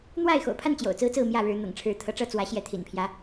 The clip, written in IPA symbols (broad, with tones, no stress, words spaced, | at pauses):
n̪wa˥˨ɪ̯ xo̰˨˩ʊ̯pʰa˥˨n t͡ɕjo̰˨˩ʊ̯t͡sɹ̩˦t͡sɹ̩˥˨ mjä˥˨ɻɻ̩˨˦ n̪ɤ̰˨˩ŋʈ͡ʂʰɻ̩˨˦t̪ʰɤ˨˦ʈ͡ʂɤ˥˨ t͡swä˨˦ɕjɛ˨˦ t̪ʰḭ˨˩npʰjä˦